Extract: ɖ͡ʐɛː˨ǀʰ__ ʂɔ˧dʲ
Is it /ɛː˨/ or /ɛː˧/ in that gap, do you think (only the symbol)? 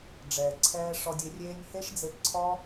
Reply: ɛː˧